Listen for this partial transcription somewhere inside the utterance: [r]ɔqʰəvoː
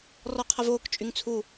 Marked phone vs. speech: correct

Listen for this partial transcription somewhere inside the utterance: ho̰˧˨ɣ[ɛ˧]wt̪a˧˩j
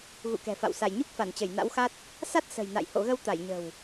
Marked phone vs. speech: incorrect: ə˧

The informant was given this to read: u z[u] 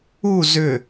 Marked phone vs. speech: incorrect: ʏ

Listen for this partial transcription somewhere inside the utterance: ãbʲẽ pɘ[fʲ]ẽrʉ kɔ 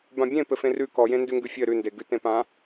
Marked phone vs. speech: incorrect: f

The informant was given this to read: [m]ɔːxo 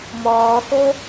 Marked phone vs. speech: correct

